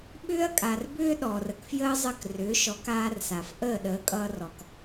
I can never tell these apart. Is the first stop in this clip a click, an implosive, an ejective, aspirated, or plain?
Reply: implosive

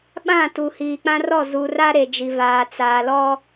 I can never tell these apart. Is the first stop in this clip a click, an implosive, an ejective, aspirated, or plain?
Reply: implosive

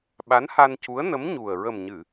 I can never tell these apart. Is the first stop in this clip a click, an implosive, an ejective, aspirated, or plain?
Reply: implosive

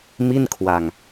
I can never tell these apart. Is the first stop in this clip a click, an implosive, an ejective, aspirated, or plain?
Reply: aspirated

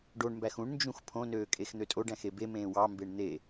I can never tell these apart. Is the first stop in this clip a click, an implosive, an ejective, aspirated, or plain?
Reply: plain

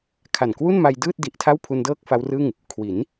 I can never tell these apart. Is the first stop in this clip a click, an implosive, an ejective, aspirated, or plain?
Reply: aspirated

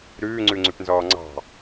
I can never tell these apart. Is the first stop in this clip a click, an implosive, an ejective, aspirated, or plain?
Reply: click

